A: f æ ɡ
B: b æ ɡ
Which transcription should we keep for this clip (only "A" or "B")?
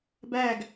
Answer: B